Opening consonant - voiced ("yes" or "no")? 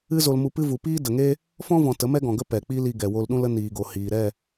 yes